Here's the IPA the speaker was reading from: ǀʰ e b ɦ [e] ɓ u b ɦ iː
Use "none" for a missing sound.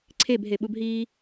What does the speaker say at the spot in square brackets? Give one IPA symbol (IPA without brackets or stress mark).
e